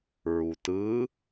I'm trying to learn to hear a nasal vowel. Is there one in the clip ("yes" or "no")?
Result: no